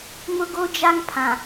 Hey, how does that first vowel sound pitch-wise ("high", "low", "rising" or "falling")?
high